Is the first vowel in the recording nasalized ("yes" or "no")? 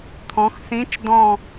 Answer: yes